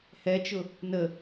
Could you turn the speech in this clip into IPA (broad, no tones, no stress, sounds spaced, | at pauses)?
h ɛ t͡ʃ ʊ | n ə